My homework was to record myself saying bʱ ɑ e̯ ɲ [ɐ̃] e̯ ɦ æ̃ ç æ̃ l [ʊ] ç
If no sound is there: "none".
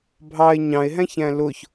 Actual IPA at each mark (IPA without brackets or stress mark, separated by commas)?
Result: ɑ̃, ʊ